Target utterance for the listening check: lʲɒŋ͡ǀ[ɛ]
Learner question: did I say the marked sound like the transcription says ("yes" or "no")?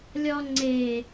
no